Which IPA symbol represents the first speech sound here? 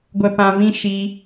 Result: ɡʷ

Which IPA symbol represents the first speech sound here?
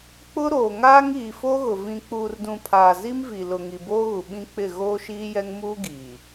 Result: k͡p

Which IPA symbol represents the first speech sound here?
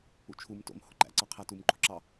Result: ṵ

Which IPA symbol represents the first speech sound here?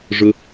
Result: ʐ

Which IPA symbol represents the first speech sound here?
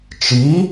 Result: t͡ʃ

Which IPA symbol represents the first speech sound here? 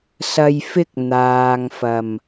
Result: s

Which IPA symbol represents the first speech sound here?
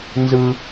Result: n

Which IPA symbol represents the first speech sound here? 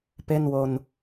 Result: p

